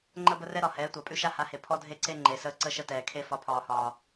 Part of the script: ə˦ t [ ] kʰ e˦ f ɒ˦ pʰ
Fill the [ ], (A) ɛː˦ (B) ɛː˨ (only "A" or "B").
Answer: B